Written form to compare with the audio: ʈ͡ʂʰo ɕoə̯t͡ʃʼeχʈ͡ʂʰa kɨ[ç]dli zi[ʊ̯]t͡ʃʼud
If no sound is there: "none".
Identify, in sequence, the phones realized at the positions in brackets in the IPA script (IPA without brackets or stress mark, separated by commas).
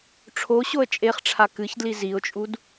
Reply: ç, ʊ̯